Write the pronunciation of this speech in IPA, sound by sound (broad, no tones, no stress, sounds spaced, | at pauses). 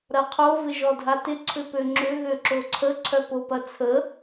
ɾ ɐ qʰ o v ɪ ʒ ɔ dʱ a t ɪ ǀʰ ʏ p ø ŋ͡ǁ ʏ ɣ ø ǁ o ǀʰ ə ǀʰ œ p o p ɐ t͡sʰ ə